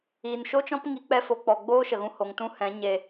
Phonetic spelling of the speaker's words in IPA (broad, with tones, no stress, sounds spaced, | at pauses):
iː˨ n ʃ o˦ t͡ʃ ɔ̃˦ p ŋ i˨˦ k͡p ɛ˧ f o˨ k͡p ɔ˨ ɡ͡b oː˦ ʃ ə˨ ɣ ũ˧ h o˨ ŋ t ũ˦ h ɛ̃˨˦ ɲ e˧